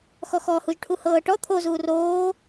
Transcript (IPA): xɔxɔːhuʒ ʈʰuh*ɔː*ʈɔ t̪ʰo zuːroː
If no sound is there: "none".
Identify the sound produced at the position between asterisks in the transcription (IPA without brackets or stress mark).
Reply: ɤː